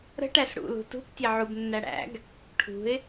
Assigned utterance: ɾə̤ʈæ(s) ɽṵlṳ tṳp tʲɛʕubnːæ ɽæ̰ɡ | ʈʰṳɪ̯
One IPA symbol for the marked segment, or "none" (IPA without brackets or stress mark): s